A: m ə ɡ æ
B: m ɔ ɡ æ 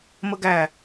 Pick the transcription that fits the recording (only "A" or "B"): A